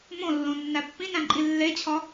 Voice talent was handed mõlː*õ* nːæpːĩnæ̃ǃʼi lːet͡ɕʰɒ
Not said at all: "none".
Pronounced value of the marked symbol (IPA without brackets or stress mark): õ